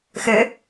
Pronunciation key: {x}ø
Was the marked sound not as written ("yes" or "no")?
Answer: no